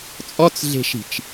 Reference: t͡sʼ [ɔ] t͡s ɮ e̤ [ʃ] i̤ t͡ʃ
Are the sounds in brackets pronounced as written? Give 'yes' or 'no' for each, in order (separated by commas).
yes, yes